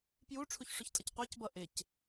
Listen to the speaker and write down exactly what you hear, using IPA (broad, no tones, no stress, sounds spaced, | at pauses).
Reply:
p j u ʈ͡ʂʰ u ç ʂ ʊ ç tʼ ʌ c qʷ æ c b ʌ ʔ ɪ c